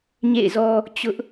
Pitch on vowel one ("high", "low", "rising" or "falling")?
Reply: falling